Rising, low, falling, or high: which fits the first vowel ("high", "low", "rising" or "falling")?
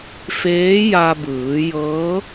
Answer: rising